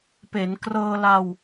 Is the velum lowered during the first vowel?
no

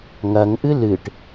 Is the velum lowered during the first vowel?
no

